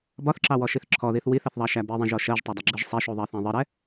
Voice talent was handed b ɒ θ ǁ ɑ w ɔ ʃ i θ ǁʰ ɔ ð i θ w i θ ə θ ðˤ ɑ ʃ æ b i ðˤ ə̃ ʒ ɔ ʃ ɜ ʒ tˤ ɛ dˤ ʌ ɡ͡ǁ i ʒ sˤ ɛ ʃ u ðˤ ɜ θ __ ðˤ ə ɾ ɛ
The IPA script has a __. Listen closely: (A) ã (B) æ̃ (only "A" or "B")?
B